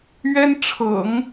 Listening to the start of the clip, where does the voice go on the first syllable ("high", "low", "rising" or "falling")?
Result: high